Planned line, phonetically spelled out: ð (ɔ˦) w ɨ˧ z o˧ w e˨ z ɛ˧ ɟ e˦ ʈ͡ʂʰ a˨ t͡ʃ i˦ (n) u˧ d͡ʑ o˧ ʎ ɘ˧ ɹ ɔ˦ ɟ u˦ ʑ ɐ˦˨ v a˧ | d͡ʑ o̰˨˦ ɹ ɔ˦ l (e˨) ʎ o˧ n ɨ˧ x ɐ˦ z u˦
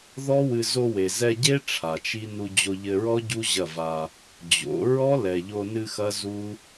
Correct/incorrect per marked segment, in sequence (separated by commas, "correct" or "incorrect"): correct, correct, incorrect